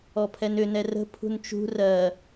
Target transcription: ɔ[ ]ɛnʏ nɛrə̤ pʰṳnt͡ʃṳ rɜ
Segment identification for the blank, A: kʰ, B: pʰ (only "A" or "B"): B